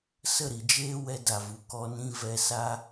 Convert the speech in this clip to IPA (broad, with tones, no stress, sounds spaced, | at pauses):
s ə˦˨ ɾ i˨ d͡ʒ eː˦ w ɛ˧ d a˨ v u˨ k ɔ˧ n ĩ˧ v ɛ˧ s a˦